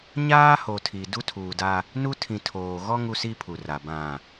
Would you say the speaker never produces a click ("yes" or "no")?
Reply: yes